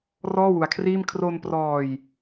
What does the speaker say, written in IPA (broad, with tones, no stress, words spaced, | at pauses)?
rɔː˥˩wu˧a̯kʰriː˥˩m kʰro˧nprɔː˧j